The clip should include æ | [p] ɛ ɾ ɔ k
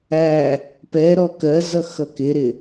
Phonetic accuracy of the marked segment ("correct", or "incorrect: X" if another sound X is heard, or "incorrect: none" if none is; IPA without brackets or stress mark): correct